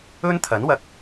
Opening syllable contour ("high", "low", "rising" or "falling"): high